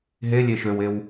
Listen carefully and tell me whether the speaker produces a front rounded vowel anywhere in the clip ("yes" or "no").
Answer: yes